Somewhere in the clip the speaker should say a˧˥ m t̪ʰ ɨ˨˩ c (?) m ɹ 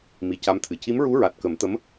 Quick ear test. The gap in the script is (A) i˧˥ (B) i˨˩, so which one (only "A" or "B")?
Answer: A